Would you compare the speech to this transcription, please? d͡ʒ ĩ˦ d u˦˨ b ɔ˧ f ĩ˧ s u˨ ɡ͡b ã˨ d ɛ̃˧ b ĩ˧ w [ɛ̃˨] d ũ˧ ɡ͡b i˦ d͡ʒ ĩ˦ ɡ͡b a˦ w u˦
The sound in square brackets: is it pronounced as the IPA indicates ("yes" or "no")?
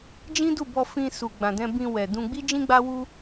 no